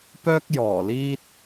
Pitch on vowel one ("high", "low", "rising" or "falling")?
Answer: high